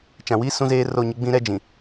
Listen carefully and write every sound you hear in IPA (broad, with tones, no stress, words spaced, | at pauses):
t͡ʃã˨wiː˦ sũ˦zeː˦ro˦˨ɲɪ˦ ɡ͡bĩ˦ɾɛ˦ d͡ʒĩ˨